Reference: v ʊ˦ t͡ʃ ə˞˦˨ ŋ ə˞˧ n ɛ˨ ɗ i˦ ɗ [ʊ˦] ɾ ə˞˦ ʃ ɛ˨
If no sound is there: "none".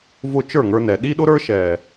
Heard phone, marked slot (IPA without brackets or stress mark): ʊ˦